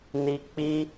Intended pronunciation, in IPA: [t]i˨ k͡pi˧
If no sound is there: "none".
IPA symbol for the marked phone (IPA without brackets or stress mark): n